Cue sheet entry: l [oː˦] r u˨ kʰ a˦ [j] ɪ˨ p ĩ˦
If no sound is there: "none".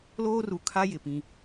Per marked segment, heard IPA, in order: oː˦, j

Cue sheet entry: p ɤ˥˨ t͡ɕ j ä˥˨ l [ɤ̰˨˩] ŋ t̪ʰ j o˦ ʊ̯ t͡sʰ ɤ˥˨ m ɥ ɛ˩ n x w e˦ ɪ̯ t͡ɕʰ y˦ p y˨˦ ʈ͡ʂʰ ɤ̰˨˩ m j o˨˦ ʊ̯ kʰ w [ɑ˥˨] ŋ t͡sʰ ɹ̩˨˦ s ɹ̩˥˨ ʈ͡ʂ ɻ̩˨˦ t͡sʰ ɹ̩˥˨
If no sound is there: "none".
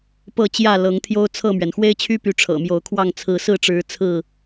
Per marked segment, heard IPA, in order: ɤ˨˦, ɑ˥˨

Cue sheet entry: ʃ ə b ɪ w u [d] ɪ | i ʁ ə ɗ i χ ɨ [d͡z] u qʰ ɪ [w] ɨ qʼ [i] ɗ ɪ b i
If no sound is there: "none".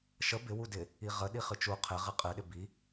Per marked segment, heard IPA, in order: d, t͡ʃ, ʁ, ɨ

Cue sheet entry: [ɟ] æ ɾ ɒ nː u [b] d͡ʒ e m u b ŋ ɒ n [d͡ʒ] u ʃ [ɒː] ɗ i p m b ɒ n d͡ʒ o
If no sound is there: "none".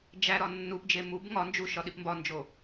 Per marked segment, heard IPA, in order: d͡ʒ, p, d͡ʒ, ɒ

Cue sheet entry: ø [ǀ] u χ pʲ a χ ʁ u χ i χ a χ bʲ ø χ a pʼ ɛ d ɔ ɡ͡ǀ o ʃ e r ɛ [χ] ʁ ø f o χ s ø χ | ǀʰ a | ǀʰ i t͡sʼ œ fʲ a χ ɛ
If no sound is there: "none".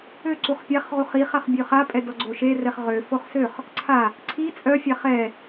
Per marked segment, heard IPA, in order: ǀ, χ

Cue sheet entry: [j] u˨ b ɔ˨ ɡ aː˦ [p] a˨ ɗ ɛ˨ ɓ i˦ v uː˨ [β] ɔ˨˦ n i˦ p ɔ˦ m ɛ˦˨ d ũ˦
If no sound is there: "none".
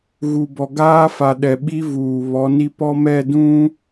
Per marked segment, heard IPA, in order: ɣ, f, β

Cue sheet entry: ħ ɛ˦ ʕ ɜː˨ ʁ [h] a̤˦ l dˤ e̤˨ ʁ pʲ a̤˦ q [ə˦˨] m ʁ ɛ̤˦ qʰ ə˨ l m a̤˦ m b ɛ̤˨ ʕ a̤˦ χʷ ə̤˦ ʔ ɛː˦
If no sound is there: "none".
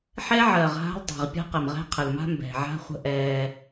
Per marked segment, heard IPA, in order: ɦ, ə˨

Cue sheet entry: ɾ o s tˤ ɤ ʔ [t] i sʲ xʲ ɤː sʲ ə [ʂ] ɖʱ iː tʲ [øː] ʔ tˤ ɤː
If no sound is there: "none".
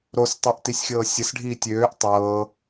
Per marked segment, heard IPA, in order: t, s, øː

